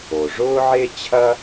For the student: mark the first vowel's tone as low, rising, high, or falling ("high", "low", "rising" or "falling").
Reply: low